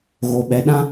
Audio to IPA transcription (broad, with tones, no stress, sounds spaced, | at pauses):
ɣ o˨ ɓ ɛ˨ ɗ ã˦